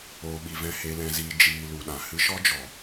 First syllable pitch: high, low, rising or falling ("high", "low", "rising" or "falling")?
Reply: low